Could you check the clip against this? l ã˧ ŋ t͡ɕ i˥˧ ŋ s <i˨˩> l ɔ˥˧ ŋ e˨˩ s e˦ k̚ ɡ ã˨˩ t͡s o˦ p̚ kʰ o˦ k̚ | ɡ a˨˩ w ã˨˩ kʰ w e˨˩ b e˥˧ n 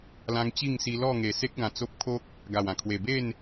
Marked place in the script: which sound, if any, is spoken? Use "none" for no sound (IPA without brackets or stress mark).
i˧